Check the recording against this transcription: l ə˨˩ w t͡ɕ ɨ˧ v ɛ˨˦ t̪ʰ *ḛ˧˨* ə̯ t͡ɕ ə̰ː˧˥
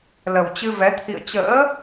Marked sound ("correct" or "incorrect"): incorrect